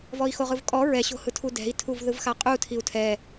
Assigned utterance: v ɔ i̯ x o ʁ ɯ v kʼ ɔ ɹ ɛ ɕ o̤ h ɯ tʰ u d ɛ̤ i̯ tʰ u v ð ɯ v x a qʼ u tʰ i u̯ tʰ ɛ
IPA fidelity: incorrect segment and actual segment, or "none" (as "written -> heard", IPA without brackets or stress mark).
none